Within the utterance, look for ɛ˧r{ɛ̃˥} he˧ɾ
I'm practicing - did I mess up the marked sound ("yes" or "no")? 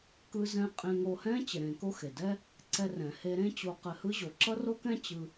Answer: yes